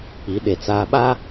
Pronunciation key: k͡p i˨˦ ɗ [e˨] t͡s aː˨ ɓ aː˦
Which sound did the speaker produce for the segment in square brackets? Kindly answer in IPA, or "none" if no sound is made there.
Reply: e˨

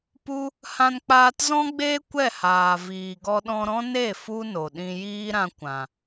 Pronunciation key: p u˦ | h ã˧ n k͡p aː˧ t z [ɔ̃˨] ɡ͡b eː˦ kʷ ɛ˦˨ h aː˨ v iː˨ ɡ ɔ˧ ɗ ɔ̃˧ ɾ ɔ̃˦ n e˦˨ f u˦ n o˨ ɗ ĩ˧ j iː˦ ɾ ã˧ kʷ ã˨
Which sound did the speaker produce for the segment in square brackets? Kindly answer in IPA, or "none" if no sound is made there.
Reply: ɔ̃˦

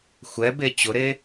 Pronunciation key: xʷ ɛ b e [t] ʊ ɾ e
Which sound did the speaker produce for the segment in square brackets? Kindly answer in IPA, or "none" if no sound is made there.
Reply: t͡ɕ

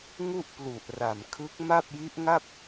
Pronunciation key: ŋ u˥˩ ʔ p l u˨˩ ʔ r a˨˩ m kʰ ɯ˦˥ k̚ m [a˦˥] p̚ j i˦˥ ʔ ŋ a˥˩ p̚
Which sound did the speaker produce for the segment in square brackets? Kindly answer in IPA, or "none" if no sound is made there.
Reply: a˥˩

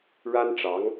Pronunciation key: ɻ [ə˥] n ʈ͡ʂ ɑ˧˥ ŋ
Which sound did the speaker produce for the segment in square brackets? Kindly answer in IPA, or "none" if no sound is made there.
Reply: a˥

